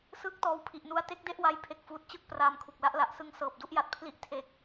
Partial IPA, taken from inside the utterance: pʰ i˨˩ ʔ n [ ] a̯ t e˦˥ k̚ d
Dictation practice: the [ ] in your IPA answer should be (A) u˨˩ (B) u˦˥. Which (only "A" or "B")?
B